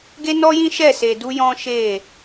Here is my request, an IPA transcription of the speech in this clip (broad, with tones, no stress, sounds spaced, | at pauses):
ɡ e˦ n ɔ˦ j ĩ˦ ʃ ɛ˦˨ s e˧ d u˦ j ɔ̃˦ ʃ e˦˨